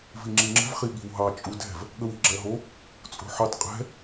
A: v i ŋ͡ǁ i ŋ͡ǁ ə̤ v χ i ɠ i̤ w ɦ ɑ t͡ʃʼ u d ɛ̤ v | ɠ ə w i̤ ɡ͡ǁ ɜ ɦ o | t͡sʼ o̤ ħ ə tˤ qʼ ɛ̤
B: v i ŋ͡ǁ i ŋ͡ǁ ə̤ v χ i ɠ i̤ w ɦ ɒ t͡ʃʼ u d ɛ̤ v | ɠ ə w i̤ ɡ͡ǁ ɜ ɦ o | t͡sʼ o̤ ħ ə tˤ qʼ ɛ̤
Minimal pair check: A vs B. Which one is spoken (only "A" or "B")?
A